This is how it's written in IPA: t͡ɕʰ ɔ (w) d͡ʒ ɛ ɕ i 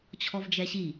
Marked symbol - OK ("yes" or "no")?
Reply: no